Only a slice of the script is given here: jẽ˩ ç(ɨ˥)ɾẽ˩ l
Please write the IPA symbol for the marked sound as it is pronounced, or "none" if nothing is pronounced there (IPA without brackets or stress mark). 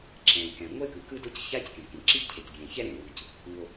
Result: ɛ˥